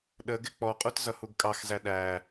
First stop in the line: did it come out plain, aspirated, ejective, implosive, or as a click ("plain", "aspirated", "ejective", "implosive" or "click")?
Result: implosive